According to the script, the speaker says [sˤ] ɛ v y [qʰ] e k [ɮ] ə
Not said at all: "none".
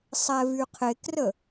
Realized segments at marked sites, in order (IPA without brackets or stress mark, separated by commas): sˤ, qʰ, r